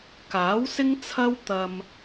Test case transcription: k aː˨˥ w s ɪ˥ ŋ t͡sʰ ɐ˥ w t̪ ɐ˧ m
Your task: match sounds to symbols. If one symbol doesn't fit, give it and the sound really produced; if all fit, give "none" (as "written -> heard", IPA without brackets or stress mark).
none